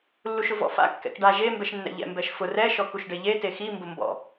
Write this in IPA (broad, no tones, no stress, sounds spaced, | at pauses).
lː u ʃ ʊ v ɔ̰ f a̰ kː ɛ̰ k ɖ a ʒ e m b ɛ ʃ nː ɛ̰ ʎ ɛ̰ m b ɛ ʃ f ʊ r ɛ ʃ ɔ k u ʃ ɖ e ʎ e t e x i m b ʊ m b ɔ̰